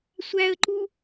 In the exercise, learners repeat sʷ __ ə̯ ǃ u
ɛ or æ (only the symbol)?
æ